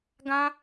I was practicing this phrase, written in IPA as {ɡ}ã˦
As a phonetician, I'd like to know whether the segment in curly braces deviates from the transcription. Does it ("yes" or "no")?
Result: no